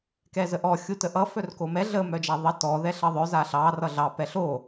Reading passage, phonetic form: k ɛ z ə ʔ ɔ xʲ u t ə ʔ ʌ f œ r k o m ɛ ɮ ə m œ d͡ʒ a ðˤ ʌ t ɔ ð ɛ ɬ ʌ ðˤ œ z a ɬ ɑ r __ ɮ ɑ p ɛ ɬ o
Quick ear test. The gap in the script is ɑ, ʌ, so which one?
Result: ʌ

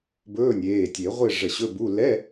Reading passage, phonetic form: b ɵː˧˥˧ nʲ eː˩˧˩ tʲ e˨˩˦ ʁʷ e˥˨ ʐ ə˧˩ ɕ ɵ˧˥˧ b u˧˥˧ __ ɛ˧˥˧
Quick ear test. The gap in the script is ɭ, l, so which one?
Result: l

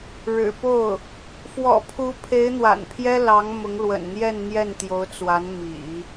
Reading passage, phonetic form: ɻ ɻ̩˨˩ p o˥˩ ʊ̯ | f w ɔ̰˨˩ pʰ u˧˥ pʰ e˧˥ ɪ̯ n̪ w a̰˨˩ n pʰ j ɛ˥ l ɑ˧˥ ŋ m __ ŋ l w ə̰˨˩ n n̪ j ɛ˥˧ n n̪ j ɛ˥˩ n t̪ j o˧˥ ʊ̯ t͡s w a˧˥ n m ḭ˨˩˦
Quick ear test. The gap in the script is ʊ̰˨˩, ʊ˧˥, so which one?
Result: ʊ˧˥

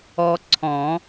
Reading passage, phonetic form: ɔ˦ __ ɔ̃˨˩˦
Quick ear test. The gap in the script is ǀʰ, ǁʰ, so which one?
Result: ǀʰ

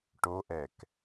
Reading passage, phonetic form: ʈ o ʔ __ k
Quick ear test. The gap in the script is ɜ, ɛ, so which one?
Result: ɛ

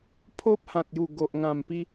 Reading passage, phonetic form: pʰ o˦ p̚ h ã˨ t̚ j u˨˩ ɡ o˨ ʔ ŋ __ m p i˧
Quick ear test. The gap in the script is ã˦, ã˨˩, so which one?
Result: ã˨˩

